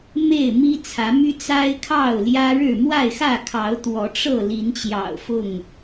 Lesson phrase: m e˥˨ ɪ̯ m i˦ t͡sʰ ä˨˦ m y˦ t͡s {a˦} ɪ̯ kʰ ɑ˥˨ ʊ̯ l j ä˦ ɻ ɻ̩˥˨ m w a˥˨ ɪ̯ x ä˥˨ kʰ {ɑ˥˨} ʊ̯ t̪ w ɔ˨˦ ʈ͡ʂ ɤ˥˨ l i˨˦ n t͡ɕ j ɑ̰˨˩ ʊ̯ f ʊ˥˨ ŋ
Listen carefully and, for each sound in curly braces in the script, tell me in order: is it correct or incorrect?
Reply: correct, incorrect

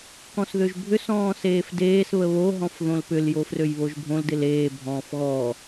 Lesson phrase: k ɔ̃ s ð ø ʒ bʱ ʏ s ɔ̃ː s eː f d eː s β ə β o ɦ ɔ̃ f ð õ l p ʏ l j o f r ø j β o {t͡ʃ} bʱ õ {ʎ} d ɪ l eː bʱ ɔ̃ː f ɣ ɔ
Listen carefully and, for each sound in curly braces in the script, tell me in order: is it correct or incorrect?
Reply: incorrect, incorrect

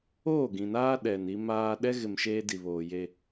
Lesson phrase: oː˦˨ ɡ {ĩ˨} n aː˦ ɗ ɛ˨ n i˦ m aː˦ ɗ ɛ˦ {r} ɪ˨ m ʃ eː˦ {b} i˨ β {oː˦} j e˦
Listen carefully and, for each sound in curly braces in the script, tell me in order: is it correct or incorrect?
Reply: correct, incorrect, incorrect, incorrect

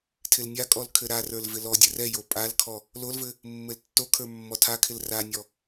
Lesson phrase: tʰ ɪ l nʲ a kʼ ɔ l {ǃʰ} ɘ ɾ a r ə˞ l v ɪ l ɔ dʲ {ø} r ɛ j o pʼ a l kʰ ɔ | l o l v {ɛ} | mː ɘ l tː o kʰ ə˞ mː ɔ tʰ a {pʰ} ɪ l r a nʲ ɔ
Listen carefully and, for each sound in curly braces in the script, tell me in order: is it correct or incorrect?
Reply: incorrect, incorrect, incorrect, incorrect

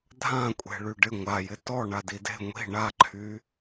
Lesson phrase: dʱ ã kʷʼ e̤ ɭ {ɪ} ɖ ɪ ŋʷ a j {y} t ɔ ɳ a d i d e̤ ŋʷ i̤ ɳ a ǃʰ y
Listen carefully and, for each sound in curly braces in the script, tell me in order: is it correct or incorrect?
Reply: incorrect, incorrect

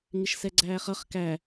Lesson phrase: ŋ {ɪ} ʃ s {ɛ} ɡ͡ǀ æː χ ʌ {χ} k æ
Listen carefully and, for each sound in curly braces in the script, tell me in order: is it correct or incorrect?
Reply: correct, correct, correct

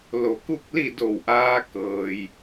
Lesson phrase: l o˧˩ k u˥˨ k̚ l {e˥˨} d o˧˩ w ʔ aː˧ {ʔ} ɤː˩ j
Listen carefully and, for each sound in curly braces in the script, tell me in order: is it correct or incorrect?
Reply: incorrect, incorrect

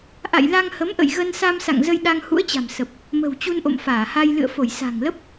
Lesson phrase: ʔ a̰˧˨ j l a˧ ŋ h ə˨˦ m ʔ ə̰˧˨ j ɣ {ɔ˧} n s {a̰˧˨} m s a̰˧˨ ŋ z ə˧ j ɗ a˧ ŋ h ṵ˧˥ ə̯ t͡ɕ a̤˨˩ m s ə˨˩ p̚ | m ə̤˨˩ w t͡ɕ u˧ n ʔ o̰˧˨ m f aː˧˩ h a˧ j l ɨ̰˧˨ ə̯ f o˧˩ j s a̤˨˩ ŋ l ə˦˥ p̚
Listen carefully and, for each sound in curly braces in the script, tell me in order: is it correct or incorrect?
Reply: incorrect, incorrect

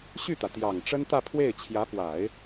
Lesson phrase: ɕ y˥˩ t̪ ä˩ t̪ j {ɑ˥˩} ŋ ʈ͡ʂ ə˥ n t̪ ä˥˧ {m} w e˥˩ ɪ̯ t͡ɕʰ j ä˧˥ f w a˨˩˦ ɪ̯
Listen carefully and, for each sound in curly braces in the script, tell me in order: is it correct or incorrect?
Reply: incorrect, incorrect

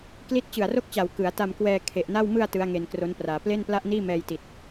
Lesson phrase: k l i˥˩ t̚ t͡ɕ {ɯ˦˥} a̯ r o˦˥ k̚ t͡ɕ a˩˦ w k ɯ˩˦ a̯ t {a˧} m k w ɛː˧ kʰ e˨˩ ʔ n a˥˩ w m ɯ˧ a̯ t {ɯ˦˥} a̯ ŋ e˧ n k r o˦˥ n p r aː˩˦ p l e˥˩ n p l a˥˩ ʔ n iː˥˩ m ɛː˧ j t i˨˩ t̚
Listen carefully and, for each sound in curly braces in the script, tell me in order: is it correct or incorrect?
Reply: incorrect, correct, correct

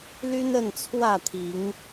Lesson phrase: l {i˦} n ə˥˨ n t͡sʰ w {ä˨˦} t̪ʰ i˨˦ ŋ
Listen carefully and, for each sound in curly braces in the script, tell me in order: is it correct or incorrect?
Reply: incorrect, incorrect

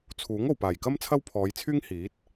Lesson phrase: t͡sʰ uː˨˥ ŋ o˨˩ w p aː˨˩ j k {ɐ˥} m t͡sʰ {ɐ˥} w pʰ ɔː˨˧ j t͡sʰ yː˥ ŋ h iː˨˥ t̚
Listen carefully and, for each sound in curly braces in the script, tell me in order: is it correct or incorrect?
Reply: correct, correct

